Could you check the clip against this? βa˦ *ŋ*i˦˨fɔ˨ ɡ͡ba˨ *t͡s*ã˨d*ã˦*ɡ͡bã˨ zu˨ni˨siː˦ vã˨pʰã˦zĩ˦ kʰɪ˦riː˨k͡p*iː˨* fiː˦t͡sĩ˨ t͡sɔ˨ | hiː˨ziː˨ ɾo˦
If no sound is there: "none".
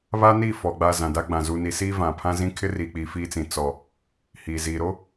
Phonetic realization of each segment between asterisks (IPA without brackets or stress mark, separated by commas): n, z, a˦, iː˨